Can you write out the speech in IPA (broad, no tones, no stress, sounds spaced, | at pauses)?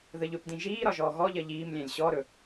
ð ə ʎ ɵ p d ĩ ʒ iː ɾ ɒ ʒ ɔː ɣ ɔ ʎ ɜ ʎ iː m lʲ ɛ̃ lʲ ɕ ɔ ɾ ɵ